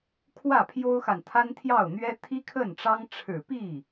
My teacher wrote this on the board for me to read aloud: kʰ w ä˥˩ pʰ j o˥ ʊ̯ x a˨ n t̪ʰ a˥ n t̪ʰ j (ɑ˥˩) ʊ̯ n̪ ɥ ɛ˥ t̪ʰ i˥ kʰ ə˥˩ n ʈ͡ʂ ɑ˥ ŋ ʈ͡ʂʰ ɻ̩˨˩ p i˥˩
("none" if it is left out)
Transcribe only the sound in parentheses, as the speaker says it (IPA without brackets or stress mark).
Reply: ɑ˥˩